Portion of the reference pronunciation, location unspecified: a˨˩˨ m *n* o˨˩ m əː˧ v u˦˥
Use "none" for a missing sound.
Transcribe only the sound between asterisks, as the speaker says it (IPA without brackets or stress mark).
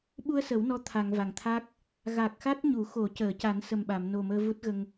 n